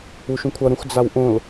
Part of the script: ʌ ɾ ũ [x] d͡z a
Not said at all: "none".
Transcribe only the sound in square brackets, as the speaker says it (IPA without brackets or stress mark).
x